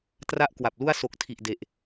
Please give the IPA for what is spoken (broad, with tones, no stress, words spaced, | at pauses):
tra˥˩ʔkwa˨˩p̚lu˥˩a̯ so˨˩k̚ tʰi˨˩ʔde˨˩ʔ